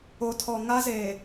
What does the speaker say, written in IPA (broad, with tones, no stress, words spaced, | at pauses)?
o˨tʰɔ˨ ŋa˦ze˨